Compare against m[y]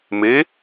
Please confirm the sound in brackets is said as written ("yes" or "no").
no